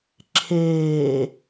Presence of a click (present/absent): present